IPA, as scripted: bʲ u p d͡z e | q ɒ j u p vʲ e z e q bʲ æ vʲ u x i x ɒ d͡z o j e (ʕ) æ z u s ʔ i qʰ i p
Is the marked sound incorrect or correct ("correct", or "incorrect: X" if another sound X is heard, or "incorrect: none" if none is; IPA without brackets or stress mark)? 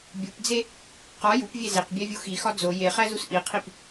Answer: incorrect: χ